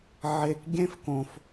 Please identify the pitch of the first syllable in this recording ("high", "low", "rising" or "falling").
low